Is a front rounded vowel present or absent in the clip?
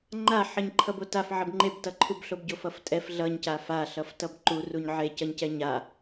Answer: absent